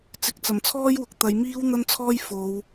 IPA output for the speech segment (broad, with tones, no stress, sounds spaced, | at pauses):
t͡s ɪ˨˥ k̚ t͡s ɐ˨˩ m t͡sʰ ɔː˥ j w ʊ˨ k̚ t̪ ɐ˨˧ j m iː˥ w n̪ ɐ˥ n t͡sʰ ɔː˥ j f o˨˧ w